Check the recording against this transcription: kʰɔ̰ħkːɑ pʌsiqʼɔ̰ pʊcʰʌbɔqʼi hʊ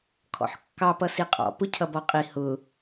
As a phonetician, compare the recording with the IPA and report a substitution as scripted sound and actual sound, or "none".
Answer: none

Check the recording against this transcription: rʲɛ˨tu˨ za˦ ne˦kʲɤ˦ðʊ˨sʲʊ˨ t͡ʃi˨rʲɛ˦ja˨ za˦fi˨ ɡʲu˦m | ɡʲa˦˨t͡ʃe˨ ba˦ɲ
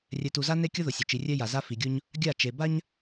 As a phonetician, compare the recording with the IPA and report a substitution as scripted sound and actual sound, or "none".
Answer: m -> ɲ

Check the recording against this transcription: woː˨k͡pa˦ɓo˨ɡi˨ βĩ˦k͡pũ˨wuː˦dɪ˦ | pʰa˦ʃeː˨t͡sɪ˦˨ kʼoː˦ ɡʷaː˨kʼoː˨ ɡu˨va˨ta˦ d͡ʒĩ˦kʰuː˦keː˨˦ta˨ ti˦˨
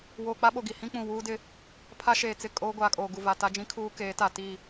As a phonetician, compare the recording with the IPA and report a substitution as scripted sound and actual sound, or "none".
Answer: β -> h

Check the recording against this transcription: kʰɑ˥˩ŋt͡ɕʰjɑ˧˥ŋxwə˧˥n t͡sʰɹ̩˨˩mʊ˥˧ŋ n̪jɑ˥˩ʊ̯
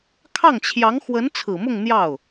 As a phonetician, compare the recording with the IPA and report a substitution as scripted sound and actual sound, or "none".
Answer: none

